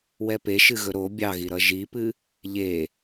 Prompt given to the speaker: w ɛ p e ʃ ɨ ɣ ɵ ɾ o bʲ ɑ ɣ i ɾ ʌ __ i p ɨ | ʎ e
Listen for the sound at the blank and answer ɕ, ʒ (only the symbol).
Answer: ʒ